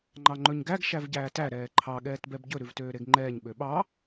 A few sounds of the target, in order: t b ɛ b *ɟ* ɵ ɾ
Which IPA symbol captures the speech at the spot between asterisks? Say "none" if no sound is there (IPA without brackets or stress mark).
ɟ